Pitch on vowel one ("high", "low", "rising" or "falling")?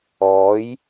rising